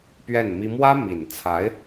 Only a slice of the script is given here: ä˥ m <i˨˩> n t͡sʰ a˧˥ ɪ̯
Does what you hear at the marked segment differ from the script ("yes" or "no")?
no